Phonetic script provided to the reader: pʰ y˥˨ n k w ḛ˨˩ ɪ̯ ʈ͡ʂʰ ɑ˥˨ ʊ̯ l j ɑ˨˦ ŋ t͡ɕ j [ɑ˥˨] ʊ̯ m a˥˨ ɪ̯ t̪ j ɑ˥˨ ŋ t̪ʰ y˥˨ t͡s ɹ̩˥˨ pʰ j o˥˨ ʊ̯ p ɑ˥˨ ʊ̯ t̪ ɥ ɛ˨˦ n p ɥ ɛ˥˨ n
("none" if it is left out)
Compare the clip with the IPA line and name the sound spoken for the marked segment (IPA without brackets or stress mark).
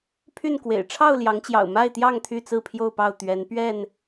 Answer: ɑ̰˨˩